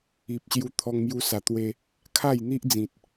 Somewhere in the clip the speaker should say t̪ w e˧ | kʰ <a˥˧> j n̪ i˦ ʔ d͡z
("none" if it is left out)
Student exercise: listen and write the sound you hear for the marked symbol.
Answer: a˥˧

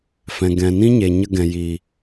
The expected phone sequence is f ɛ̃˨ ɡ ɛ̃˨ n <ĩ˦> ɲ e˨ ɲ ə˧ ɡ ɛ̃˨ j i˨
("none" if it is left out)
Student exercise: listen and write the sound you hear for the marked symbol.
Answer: ĩ˦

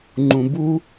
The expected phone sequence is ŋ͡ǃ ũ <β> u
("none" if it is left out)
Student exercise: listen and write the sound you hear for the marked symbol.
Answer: b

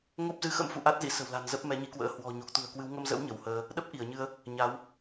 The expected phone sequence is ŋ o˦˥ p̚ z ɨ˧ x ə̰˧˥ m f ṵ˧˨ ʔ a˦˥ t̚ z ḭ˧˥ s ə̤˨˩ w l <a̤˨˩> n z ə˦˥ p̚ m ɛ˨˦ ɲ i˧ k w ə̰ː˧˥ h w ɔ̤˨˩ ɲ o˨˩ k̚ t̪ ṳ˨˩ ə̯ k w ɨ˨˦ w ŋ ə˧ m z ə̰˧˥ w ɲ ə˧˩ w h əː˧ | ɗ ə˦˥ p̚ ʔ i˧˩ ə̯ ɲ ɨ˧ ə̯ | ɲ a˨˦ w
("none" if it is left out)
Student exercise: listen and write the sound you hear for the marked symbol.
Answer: a̤˨˩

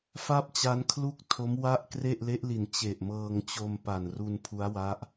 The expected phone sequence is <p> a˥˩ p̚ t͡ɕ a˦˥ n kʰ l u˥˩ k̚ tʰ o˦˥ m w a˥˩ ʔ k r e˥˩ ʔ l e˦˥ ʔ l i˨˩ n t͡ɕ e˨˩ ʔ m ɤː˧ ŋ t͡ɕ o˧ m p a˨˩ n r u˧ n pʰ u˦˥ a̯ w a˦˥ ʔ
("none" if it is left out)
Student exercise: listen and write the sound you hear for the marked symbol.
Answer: f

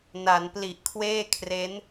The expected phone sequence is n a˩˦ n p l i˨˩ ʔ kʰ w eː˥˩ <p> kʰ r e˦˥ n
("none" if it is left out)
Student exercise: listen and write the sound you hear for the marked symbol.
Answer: none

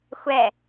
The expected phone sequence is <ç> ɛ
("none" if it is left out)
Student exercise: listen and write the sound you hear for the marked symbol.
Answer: xʷ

